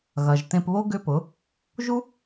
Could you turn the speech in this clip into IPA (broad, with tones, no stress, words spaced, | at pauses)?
ɣɐ˨ʒtẽ˧pβo˦ ɡʏ˦pʊ˨˦ | ʒu˦